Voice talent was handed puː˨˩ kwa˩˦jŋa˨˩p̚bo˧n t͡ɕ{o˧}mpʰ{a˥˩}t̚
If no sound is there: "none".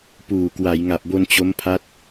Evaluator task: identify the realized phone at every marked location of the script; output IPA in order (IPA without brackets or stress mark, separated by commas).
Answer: o˦˥, a˦˥